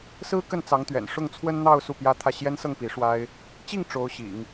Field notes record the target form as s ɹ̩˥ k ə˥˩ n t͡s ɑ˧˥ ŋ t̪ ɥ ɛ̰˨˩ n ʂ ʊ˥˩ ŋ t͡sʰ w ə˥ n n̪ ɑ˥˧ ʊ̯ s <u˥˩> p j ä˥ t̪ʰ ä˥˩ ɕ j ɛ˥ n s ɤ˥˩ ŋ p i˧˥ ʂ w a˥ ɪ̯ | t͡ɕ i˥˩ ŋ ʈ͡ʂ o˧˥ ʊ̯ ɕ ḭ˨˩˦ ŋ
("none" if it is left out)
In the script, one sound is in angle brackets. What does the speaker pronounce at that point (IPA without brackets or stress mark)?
u˥˩